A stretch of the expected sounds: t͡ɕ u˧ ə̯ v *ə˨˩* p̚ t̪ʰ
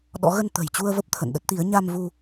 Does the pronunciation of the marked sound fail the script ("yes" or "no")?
yes